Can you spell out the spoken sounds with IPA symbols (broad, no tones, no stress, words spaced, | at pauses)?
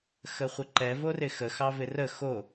xəχʷəǃɛ vorɪxə xɑvɪrə xo